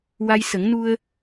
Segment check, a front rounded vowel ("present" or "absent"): absent